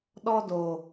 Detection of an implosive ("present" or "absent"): present